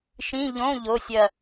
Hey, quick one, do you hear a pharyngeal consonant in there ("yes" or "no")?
no